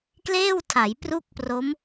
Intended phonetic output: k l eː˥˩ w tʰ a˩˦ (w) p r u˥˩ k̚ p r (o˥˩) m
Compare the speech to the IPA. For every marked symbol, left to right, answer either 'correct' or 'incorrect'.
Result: incorrect: j, incorrect: o˦˥

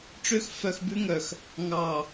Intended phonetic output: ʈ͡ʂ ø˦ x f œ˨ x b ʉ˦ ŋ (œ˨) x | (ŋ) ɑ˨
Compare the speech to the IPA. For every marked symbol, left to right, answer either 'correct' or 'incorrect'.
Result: correct, correct

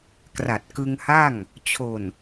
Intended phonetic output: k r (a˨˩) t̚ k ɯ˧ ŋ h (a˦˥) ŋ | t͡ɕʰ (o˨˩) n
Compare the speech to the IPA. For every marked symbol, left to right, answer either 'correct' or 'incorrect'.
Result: correct, incorrect: a˥˩, correct

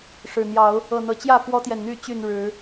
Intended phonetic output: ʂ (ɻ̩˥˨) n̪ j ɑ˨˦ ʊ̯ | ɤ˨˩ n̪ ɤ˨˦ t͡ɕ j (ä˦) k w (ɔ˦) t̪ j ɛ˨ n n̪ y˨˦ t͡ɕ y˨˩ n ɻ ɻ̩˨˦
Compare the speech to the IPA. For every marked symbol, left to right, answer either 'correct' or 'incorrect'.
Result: incorrect: ɻ̩˨˩, incorrect: ä˥˨, correct

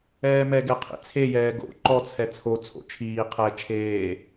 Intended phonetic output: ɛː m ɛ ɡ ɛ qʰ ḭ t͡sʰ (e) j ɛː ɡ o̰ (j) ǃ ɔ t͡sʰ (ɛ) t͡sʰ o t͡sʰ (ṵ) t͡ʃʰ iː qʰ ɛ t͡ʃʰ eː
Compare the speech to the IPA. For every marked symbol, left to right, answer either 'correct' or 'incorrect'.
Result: correct, incorrect: none, correct, incorrect: o̰

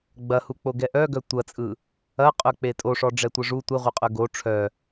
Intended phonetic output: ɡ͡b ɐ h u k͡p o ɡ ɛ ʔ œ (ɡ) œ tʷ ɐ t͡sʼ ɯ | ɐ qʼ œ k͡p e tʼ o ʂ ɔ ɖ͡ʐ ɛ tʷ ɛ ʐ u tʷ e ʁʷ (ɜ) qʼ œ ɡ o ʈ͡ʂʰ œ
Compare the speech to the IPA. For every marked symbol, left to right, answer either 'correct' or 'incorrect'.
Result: correct, correct

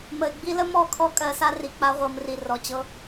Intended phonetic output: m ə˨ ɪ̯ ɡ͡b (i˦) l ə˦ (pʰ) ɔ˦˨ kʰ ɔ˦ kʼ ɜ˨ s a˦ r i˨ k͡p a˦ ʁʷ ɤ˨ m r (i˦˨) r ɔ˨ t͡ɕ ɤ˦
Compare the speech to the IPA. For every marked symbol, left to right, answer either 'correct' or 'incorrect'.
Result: correct, incorrect: m, incorrect: i˨

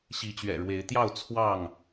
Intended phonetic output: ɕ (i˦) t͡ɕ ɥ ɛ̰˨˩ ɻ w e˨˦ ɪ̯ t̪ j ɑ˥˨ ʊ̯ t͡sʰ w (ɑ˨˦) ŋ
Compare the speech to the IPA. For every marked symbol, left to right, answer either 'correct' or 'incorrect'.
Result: incorrect: i˨˦, incorrect: ɑ˥˨

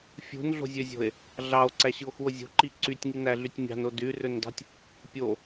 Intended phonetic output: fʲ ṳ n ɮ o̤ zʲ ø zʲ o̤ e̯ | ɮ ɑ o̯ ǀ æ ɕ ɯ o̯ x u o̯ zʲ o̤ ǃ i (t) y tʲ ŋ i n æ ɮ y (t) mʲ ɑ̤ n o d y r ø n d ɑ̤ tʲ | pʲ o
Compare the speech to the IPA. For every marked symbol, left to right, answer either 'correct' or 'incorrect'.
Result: incorrect: ǀ, incorrect: tʲ

